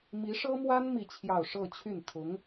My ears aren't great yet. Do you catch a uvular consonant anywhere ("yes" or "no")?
no